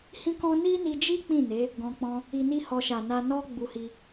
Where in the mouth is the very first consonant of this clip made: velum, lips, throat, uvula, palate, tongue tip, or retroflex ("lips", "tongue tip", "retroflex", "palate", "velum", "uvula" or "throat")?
throat